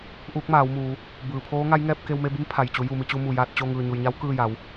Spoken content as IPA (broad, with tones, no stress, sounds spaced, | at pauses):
ʔ uː˧˥ k̚ m aː˩˧ w m uː˩˧ | b ɯː˩ pʰ oː˧˥ ŋ a˧˥ j ŋ ɛː˧ p̚ k e˧ w m e˧ b i˧˥ m pʰ a˩ j t͡ɕ u˩˧ j u˧˩ m i˥˨ t͡ɕ u˧ m u˧˩ j aː˥˨ t̚ t͡ɕ o˥˨ ŋ ɯː˧˩ ɲ u˩ j ɲ a˧˥ w k ɯː˥˨ j a˩˧ w